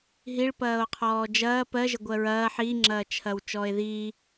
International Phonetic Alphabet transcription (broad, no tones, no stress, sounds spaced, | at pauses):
ɦ i ɭ p ɐː o̯ qʰ ɔː d͡ʒ ɐː p ɜ ʒ ə ɡʷ ɜ ɹ ɐː ħ i ŋ͡ǁ ɐː t͡ʃʰ ɐ w t͡ʃ ɔː e̯ ð iː